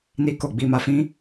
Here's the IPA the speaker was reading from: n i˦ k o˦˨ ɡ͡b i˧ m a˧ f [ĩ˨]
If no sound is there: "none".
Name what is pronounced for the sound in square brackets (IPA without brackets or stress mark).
ĩ˦